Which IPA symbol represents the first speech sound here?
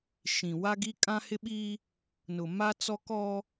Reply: ʃ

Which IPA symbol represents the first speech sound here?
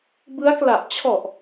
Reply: b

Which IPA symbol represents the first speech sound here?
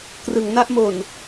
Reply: k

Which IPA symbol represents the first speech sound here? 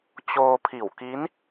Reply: t͡ɕ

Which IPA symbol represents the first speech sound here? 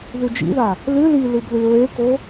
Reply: ð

